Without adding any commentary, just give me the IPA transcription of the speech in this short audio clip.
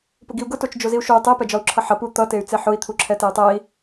p ʊ ɡ i u̯ ɡ ʊ t o t͡ʃ d͡ʒ o z i u̯ ʃ o y̯ tˤ e p ɛ d͡ʒ ɒ u̯ ǁʰ ʌ ħ ʌ p u t̪ ʌ t e y̯ t͡s e ħ ʊ i̯ t̪ʰ u ǁʰ ɛ t e y̯ tˤ ɛ i̯

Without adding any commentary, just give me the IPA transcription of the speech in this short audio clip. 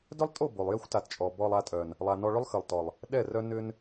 d œ˦ lˠ tʼ o˦˨ b o˨ lˠ j ɛ˦ xʷ t a˨ t t͡ʃʼ ɔ˨ b ɔ˧ lˠ a˧ tʼ œ˨ n | lˠ a˨ n ɔ˧ ɭ ʏ˦ lˠ x ə˨ lˠ t ɔ˨ lˠ | ɗ ɛ˦˨ r œ˦ n ʏ˦ n

